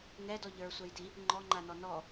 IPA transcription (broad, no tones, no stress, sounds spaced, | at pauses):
ŋ ɛ d ɔ ʎ ə˞ sʷ ɛ j d i | ŋ͡ǃ ɔ ŋ͡ǃ a n ɔ n ɔ